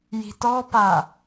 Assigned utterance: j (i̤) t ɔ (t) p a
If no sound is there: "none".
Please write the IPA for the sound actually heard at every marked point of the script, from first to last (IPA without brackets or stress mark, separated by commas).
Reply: i̤, none